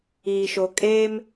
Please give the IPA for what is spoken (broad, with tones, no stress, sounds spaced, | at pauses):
iː˨ ʃ o˨ kʼ eː˦ m